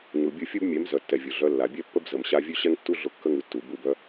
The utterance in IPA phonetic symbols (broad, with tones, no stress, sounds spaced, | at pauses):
ɲ u˨ bʲ u˦˨ fʲ u˦ b mʲ ɛ˨˦ m z œ˨ tː ɛ˨ vʲ ʊ˨ ɮ œ˧ lː a˨ bʲ ɛ˦ pː ə˦ b z ə˨ m ɕ a˧ vʲ ʉ˦ ɕ ɛ˦ ŋ tː u˦ ɮ ʊ˦˨ kː ə˦ ŋ ʉ˧ tː u˨ b u˦˨ b œ˦